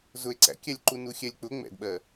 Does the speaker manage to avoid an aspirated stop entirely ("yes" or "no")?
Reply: yes